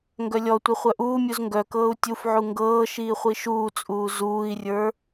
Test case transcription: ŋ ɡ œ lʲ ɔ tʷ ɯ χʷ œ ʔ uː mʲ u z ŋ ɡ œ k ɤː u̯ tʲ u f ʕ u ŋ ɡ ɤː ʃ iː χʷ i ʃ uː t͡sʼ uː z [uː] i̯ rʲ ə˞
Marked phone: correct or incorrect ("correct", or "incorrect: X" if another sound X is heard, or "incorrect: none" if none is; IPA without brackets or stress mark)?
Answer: correct